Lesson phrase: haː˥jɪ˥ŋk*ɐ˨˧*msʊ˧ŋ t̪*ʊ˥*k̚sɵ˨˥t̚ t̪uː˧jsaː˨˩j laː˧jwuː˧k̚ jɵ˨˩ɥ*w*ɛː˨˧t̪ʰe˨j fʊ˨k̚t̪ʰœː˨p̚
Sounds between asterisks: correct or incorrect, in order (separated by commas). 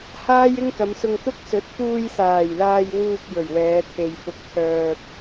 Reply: correct, correct, correct